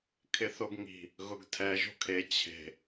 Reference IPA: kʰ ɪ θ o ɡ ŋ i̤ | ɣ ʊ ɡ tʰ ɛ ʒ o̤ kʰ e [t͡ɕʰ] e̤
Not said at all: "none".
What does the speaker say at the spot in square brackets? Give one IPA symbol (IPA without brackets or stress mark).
t͡ɕʰ